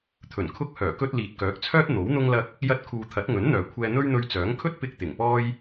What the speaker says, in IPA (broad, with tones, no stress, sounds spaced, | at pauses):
t̪ʰ ɵ˨˩ n kʰ ʊ˧ k̚ h œː˨˩ k ɵ˧ t̚ l iː˨ t̚ k œː˨˥ k̚ t͡sʰ œː˥ t̚ n̪ o˨˥ w n̪ ʊ˥ ŋ l ɐ˥ k̚ | j ɐ˥ t̚ kʰ uː˧ t̪ʰ ɐ˨˥ t̚ ŋ ɵ˨˥ n n̪ œː˨ kʷʰ ɛː˧ n̪ ɵ˥ ɥ n̪ ɵ˧ ɥ t͡s œː˨˥ ŋ kʰ ɵ˥ t̚ p ɪ˧ k̚ t̪ ɪ˨˩ ŋ p ɔː˥ j